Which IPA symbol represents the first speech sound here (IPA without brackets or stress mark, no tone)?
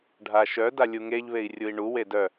ɖʱ